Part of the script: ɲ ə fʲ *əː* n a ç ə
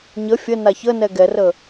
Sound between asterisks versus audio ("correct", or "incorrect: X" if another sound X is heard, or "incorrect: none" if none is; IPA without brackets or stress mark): incorrect: ə